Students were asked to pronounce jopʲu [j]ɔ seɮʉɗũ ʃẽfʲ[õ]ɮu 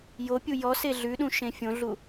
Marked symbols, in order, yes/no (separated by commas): yes, yes